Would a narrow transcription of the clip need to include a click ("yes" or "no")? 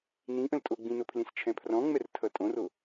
no